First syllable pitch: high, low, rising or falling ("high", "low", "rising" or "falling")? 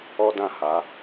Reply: high